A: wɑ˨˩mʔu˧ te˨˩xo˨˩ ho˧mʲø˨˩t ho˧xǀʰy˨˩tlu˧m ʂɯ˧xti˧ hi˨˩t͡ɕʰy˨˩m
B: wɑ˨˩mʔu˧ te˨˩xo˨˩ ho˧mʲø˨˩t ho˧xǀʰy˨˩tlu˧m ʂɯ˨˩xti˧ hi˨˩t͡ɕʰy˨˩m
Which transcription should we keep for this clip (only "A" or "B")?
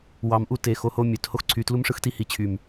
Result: A